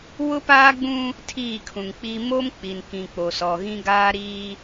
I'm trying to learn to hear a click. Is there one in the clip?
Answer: no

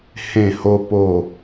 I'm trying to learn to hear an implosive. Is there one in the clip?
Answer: no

